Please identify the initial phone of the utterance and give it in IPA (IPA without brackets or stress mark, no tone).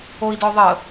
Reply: o